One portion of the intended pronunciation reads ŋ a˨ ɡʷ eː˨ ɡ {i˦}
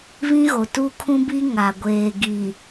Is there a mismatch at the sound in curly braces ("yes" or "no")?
yes